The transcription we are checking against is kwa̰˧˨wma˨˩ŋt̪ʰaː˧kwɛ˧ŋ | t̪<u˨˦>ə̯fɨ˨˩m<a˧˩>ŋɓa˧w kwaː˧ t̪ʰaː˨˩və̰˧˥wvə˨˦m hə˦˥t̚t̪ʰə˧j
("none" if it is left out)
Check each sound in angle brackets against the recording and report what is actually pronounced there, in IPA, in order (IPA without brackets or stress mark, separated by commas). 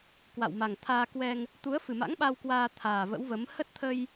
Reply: u˨˦, a̰˧˥